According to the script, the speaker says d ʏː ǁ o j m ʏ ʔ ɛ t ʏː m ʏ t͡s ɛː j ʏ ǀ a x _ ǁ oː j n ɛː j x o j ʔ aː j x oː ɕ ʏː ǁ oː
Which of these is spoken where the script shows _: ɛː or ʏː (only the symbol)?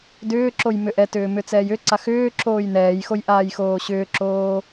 ʏː